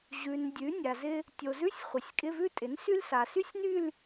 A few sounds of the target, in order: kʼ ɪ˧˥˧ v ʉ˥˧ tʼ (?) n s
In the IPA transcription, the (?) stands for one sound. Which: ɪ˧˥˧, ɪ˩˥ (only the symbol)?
ɪ˩˥